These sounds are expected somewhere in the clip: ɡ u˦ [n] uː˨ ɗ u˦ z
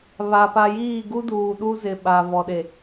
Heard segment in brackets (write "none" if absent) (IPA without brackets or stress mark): d